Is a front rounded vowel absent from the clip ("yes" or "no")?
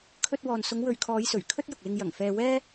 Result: yes